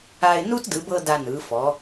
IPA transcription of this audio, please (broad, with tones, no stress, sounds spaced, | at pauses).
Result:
a˧ ɪ̯ n u˥ t d ɯ˩˧ b ɤ˧ d a˧ n ɯ˩˧ f ɔ˩˧